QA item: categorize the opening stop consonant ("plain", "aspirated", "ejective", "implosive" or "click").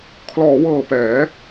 aspirated